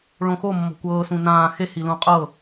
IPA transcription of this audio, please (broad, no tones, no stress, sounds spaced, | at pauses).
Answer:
ɭ õ x o mː ɔ̤ kʷ ɤː s ũ n ãː x e h i l ũ qʼ ɤ